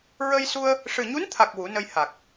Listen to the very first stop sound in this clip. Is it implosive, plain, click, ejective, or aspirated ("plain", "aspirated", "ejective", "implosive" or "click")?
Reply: aspirated